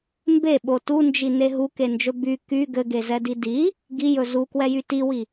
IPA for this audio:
m b e ɓ o t u n d͡ʒ i n e ɦ u k e n d͡ʒ ɵ b y k y ɡ ɘ ɡ e z ɛ d i d i | ɡ i j ɵ z u k w ɛ j y t i w i

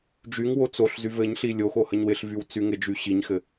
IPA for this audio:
d͡ʒ y ŋ w o t͡s o ɬ z y v ɘ ɲ ɬ i lʲ o x o h ə ɲ w ɪ ɬ v y w t͡s y ŋ ɪ d͡ʒ y ɕ i ɲ x ɘ

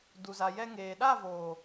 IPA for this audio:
d u˨ z a˨ j ɛ˧ ŋ eː˨ ɗ a˦˨ v oː˨

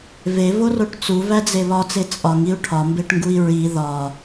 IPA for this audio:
v e v o r o ʈ t͡s u v æ d͡z e β ɒ t͡s e t͡sʼ ɒ ŋ i u̯ ʈʰ ɒ m b e ʈ ŋ ɡ u i̯ ɹ i ð ɒ

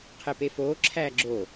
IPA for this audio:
qʰ e p e f oː ǁʰ æː ɡ͡ǁ o

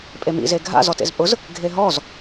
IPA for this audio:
pʼ e m ḭ z e ɡʱ a̰ z ɔ t ḛ z pʼ ʊ z | ɡʱ e ɦ ɔ z

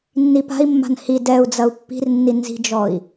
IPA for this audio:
nː i p a̤ i̯ mː a̤ n h i d ɛ u̯ d͡z ɐ u̯ pː i̤ r nː i n z i̤ d͡ʒ ɔ i̯

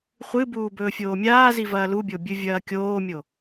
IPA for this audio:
χʷ ɨ b uː b ɵː fʲ oː mʲ aː z i v ɐː l u bʲ o bʲ ɨ vʲ ɐː kʲ oː mʲ o

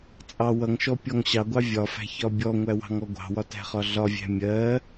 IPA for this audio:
t͡sʼ ɑ w ʌ ŋ ʃ ɔ pʲ ɔ ŋ ɕ ɑ ɡʷ ɑ vʲ ɒ f æ̤ ç ɒ bʲ ɔ ŋʷ æ w ɑ̤ ŋ ɔ ɡʷ ɑ̤ w ɒ t æ̤ χ ɒ ɮ ɒ vʲ æ̤ mʲ ɜ

